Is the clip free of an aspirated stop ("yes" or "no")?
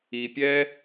yes